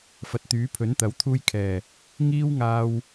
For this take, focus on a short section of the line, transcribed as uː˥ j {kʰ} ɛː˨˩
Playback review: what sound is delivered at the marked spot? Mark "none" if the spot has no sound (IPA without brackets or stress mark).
kʰ